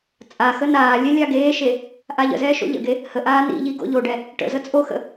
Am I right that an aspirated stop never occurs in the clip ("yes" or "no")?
yes